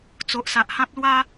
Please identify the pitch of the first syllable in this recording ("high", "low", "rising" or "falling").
low